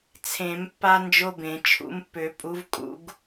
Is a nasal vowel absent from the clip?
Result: no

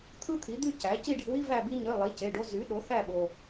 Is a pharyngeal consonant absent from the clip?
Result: yes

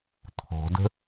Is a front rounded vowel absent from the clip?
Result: yes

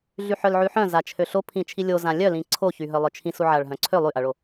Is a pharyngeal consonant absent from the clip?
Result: no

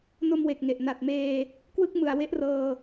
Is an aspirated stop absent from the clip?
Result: yes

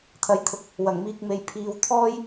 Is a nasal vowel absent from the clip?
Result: yes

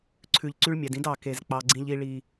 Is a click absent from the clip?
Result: no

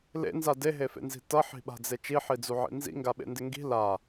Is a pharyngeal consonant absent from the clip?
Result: no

